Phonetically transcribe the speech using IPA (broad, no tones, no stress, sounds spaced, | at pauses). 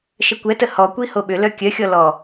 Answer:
ʃ ə kʷ ɛ t ə h ɔ kʷ i h o ɓ ʏ l œ kʲ œ xʲ ɔ l ɔ